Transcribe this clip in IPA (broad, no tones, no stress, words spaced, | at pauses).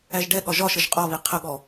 æʒɖɛɠɒ ʒɒʃəʒ qʼɒβi qʰəɠɔ